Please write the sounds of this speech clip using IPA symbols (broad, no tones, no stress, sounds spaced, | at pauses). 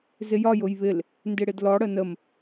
z ɪ j ɒ j ʊ j β ɪ l | n d ɪ ɽ ɪ d l ɔ ɽ ə n ə m